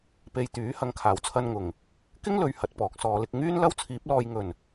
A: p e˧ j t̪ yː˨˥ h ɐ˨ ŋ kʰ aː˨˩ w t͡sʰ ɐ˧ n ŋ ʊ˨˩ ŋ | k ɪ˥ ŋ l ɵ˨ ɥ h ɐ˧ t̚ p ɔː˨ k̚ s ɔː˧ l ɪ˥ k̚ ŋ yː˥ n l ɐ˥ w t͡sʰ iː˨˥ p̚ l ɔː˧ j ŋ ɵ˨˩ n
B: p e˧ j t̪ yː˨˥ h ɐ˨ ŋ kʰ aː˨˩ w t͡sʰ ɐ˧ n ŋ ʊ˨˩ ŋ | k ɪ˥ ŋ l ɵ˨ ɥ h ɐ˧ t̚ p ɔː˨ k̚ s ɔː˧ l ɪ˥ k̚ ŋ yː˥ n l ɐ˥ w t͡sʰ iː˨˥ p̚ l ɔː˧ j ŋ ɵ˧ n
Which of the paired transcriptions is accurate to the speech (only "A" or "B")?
A